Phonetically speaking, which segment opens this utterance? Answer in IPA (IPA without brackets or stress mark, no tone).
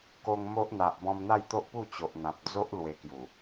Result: k